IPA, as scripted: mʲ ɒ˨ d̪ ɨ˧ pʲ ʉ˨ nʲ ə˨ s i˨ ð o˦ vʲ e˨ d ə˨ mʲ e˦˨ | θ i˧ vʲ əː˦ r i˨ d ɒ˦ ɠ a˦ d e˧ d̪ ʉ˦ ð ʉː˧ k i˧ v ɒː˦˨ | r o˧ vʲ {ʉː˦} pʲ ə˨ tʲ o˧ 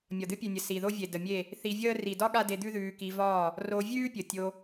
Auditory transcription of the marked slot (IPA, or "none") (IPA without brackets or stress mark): ʉː˦